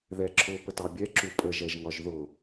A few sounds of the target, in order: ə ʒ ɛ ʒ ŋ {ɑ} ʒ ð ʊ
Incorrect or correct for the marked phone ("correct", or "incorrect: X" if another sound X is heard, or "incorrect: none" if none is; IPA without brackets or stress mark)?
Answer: incorrect: ɒ